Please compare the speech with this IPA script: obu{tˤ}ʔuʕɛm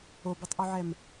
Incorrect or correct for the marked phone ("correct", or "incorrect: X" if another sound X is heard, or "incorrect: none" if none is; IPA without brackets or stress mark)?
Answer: correct